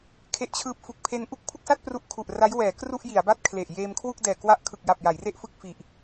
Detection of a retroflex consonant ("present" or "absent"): absent